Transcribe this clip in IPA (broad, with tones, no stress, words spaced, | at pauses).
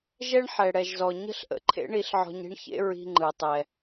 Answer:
ʒɛ˥ɳħɛ˩ɽɛ˩ʒzɔ˩ ɲə̤˥ɬʔə̰˩ǃʰḛ˥ ɳi˧ɬʕɔ̤˧ɲi̤˥ɳçḛ˥ ɹi̤˧ŋ͡ǃɯ˩tˤɛ˩